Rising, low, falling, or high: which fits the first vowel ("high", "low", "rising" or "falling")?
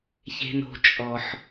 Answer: low